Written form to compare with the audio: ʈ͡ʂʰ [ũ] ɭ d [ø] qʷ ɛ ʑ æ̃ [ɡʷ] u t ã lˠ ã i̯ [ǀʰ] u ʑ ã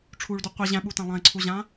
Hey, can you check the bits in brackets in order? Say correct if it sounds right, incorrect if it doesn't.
incorrect, incorrect, incorrect, correct

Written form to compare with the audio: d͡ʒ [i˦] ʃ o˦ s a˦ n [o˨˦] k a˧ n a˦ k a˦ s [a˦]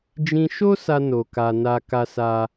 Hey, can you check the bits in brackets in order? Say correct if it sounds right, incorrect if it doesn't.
incorrect, incorrect, correct

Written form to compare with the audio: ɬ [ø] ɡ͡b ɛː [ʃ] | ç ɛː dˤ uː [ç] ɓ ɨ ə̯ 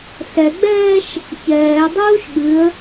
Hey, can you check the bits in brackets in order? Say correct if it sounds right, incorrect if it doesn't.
incorrect, correct, incorrect

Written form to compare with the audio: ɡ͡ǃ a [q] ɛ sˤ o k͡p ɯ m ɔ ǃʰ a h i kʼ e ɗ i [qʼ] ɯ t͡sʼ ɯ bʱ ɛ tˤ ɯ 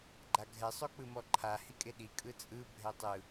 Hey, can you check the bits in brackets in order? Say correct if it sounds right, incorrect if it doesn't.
incorrect, incorrect

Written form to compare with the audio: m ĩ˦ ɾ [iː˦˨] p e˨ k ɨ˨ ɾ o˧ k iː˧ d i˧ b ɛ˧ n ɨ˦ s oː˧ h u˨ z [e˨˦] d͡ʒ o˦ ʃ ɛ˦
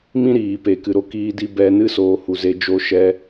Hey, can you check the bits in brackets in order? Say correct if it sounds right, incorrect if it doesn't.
incorrect, incorrect

